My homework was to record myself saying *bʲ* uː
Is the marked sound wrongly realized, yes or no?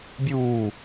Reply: no